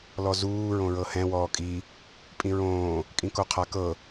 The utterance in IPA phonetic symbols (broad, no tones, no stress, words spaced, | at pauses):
lɔzuː ɹõɹɤhɛ̃ wɔːkʼi | pʼĩɹõː | kʼĩkoqʰakɤ